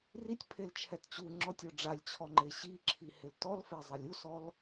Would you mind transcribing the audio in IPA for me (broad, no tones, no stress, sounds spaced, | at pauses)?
r i tʲ pʰ e l t͡ʃʰ ɛ t t͡ɕ u ŋ͡ǁ ɔ tʲ ɔ ɖ͡ʐ a lʲ t͡ɕʰ ɔ ŋ͡ǃ e ɕ i ǁʰ i h ɪ l t ɔ l f e zˤ e lʲ u s ɔ l